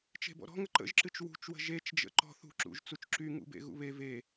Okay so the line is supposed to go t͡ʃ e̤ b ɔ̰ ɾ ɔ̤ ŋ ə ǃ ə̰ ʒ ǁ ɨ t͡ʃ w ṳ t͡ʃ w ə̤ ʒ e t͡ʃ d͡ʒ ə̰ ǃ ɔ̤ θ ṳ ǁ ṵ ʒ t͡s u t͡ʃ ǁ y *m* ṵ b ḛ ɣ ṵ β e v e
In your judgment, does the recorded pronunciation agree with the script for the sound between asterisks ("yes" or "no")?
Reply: no